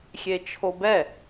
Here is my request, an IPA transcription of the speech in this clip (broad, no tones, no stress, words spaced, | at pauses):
xʲet͡ʃʰobɛ